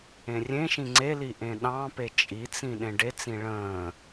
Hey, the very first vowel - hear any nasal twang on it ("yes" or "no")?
yes